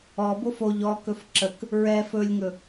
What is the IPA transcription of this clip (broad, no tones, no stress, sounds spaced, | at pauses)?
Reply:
ɔ b o f o ʎ ɔ k ɵ f ǁ ə k | ɹ ɛ f ɵ lʲ ŋ ɵ